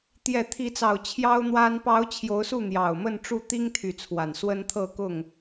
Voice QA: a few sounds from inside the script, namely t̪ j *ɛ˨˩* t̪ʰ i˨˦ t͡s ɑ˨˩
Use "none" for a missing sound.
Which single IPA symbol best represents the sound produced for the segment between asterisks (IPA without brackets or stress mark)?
ɛ˨˩